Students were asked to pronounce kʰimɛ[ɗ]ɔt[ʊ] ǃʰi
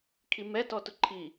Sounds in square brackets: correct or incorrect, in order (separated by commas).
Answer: incorrect, correct